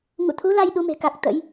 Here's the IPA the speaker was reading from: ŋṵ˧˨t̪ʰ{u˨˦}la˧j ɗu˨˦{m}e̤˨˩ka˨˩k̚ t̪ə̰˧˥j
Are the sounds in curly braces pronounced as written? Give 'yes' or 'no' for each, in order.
yes, yes

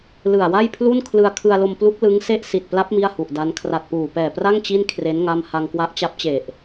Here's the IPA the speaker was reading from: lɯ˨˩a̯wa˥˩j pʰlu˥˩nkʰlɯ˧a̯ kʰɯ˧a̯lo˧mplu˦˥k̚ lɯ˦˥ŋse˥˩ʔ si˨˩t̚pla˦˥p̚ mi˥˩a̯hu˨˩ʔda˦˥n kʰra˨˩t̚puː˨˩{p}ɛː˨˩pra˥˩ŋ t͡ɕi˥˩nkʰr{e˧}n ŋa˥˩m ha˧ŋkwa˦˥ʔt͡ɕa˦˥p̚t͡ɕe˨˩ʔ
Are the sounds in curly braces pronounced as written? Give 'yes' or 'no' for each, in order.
yes, no

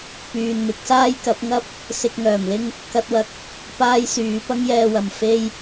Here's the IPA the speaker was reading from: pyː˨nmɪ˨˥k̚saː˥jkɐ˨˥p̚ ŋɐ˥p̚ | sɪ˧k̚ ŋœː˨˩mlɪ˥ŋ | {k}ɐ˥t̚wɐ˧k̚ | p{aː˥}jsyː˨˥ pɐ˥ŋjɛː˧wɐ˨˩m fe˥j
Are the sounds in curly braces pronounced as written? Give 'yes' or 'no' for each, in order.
yes, yes

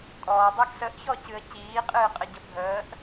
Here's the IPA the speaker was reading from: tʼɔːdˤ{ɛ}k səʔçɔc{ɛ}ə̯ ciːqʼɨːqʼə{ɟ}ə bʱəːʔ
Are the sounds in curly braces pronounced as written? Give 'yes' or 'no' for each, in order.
yes, no, yes

